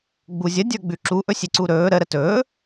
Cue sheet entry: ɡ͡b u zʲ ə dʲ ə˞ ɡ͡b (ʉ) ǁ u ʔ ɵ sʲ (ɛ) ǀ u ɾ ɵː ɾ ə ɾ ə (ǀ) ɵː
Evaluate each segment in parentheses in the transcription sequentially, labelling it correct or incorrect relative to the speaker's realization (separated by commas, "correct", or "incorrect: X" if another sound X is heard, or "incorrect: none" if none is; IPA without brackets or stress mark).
correct, incorrect: e, incorrect: t